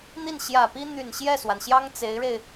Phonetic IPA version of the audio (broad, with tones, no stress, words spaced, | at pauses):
n̪i˥˩nɕjä˨˩pi˥ n̪y˨˩n ɕjɛ˥˩swa˩nɕjɑ˥ŋ t͡se˧˥ɪ̯ɻe˧ɪ̯